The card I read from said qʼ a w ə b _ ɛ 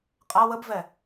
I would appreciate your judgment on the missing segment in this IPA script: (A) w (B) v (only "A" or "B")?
B